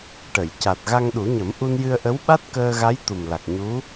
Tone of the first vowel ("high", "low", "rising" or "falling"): low